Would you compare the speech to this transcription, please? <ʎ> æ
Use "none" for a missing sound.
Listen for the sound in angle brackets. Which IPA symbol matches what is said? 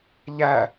ʎ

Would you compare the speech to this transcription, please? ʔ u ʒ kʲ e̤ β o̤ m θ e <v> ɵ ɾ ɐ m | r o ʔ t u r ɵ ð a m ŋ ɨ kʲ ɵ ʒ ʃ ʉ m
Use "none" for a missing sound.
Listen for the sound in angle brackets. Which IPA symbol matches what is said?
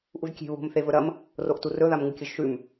v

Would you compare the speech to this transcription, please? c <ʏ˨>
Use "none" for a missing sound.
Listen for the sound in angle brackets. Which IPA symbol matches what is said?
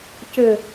ʏ˨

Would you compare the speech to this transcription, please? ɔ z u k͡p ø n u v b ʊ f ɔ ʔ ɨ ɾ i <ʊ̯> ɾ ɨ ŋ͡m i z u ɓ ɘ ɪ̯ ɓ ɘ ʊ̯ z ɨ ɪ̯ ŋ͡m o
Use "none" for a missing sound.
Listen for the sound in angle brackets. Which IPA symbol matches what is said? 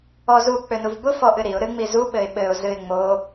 ʊ̯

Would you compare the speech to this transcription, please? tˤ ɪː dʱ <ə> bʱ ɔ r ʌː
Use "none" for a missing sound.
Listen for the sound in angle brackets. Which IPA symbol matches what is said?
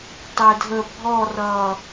ə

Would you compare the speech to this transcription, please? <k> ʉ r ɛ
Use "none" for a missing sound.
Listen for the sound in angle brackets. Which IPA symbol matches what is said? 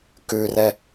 k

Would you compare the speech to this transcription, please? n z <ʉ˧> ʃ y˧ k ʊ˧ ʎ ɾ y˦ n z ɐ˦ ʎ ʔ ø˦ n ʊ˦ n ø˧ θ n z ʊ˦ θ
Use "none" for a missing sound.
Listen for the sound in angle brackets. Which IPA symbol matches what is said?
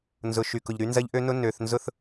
ʊ˧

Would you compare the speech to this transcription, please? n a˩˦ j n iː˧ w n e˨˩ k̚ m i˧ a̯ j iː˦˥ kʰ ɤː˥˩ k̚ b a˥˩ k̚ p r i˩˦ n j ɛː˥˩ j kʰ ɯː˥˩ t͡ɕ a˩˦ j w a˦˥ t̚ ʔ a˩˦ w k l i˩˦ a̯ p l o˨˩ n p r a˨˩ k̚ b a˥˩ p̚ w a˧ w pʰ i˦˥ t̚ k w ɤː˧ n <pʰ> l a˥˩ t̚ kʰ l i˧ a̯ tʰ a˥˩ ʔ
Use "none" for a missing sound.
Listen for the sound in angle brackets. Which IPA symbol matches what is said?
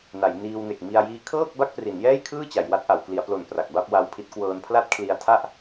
pʰ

